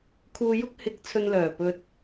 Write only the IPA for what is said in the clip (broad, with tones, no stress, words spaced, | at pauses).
kʰuː˧jʊ˥k̚ hɪ˨˥k̚ t͡sʰɵ˧nlœː˨˩pɵ˧t̚